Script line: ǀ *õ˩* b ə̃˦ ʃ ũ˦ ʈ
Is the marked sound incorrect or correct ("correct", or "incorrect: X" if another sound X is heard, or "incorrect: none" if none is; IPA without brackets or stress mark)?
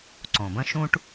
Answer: correct